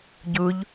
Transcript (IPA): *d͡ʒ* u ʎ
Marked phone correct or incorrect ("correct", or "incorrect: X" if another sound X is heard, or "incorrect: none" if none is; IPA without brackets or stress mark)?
incorrect: ɟ